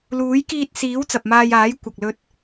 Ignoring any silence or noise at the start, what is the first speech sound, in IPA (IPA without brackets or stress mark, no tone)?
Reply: l